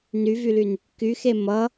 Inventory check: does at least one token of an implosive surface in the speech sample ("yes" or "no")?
no